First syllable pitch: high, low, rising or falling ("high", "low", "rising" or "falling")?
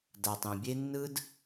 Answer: low